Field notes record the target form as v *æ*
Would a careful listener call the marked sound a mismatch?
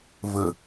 yes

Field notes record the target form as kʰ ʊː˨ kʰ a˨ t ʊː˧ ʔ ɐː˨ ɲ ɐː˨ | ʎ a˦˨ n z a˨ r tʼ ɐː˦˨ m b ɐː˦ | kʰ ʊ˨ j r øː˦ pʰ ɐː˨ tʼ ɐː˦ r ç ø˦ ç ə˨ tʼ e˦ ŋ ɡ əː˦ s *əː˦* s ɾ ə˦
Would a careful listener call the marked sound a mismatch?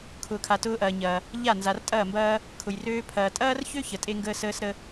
no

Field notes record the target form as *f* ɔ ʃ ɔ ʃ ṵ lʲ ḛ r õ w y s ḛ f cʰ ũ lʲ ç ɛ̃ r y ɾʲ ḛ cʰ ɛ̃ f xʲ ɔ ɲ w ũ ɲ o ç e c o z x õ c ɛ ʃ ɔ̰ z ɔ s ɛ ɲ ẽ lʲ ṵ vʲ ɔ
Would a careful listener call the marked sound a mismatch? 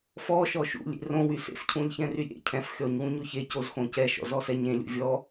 no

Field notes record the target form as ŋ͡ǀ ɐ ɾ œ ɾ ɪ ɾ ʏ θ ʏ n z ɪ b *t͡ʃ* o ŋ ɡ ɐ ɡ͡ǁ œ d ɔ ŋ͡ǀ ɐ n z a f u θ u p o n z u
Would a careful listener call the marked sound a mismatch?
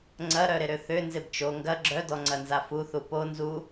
no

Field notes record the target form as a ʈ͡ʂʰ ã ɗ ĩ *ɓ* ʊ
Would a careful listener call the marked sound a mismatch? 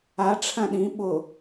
no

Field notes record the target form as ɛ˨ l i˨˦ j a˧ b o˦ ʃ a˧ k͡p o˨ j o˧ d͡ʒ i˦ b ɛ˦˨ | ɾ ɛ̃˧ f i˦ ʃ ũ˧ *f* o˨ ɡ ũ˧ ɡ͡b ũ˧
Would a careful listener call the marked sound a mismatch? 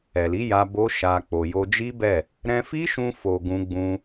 no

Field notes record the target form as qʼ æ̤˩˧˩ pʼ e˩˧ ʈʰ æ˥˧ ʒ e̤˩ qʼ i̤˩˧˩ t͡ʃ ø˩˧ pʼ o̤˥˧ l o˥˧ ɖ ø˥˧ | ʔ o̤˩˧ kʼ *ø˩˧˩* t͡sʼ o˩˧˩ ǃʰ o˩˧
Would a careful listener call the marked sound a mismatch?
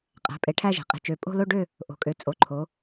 yes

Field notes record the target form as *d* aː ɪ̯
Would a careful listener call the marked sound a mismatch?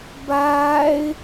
yes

